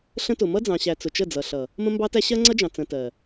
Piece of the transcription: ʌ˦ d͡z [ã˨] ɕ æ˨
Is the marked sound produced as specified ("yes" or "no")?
no